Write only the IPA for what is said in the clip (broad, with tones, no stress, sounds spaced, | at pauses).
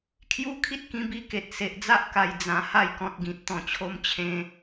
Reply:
kʰ j u˦ kʰ i˦ t̚ k ĩ˧ b i˧ k e˨ t̚ s e˨ ʔ d͡z a˦ ʔ k a˨˩ j d͡z ã˧ h a˥˧ j k ɔ̃˨ t̚ ɡ ĩ˨ t̚ t̪ ɔ̃˨˩ t͡ɕʰ o˧ m t͡ɕʰ ẽ˧